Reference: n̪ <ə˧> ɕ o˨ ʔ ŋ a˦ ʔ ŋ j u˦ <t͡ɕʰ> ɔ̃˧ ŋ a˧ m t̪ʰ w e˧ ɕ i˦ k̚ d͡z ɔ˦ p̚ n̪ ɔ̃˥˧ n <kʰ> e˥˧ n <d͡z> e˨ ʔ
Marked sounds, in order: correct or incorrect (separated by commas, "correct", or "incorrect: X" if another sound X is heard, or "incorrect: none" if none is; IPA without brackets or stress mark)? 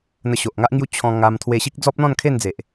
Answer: correct, correct, correct, correct